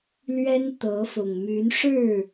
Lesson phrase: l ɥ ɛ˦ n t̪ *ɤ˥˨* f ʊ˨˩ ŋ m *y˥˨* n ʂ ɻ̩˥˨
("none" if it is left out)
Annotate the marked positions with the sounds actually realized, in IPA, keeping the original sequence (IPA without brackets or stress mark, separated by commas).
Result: ɤ˨˦, y˨˦